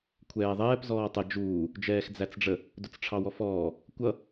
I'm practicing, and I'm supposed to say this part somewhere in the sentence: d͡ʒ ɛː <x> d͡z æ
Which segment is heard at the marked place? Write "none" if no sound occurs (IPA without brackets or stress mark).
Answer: x